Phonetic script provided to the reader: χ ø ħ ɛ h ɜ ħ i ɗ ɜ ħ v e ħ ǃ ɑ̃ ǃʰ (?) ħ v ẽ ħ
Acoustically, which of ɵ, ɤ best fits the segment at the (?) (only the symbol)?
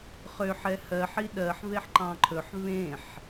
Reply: ɵ